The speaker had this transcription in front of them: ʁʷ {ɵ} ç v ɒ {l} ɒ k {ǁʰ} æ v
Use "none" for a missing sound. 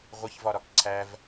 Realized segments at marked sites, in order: ə, ɾ, ǀʰ

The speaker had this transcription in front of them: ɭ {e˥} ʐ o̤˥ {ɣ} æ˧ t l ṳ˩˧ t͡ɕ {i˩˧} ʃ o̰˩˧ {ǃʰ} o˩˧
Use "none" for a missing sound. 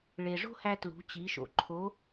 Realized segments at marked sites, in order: e˩, h, i˩˧, ǃʰ

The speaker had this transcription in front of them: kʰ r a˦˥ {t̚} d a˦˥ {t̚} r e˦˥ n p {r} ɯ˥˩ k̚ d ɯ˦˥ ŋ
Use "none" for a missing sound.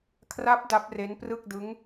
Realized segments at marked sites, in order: p̚, p̚, r

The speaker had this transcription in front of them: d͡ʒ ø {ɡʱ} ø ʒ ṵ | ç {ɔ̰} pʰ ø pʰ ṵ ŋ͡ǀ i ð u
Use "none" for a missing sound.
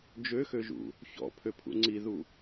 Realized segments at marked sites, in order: x, ɔ̰

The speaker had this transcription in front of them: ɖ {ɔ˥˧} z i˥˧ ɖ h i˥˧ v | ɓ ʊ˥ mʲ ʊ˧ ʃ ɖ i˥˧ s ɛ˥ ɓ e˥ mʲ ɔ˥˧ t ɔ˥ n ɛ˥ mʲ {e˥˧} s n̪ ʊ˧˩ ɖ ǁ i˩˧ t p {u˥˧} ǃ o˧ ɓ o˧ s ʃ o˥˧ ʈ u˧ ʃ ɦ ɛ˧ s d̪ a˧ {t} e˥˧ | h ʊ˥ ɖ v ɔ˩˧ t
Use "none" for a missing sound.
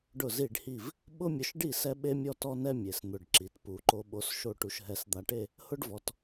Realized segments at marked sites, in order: ʊ˥˧, e˩˧, u˩˧, ʈ

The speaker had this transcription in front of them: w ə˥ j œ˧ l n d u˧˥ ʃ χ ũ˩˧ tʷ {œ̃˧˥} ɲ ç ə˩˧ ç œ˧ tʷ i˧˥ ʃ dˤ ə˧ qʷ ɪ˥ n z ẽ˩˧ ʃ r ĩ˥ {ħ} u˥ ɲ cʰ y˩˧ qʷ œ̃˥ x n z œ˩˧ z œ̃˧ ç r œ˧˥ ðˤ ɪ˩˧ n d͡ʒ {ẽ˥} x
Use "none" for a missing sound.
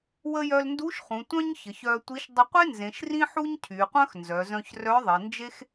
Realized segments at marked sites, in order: œ̃˥, ħ, e˥

